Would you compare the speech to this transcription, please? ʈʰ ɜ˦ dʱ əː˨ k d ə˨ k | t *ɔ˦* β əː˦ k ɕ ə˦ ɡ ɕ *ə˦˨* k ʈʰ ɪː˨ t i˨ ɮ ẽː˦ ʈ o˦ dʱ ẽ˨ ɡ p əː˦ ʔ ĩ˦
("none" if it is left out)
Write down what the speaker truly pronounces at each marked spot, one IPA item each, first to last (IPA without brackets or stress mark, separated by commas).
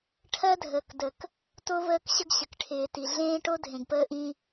o˦, ə˨